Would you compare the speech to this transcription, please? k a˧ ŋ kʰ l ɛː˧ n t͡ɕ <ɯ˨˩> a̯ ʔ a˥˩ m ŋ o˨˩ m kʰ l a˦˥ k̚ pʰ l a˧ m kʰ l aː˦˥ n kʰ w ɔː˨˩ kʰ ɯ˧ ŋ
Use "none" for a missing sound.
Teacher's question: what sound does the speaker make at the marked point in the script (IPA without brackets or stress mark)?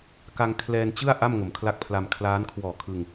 ɯ˥˩